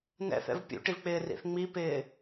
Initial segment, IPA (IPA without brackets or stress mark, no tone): n